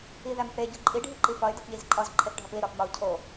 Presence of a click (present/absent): present